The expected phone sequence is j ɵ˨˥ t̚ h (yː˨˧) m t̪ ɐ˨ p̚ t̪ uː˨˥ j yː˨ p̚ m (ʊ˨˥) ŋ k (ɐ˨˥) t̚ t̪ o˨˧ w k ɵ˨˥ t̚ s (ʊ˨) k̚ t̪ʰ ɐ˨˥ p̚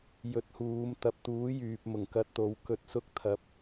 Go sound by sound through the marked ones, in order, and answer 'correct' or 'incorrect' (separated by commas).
incorrect, incorrect, incorrect, incorrect